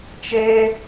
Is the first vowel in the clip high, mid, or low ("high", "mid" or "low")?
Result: mid